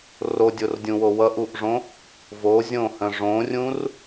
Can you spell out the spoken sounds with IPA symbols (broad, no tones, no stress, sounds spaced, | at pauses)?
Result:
r o dʲ o r dʲ ũ w o w ʌ ʔ u ʔ ʐ õ | v o zʲ õ h ə̃ ʐ õ rʲ ũ r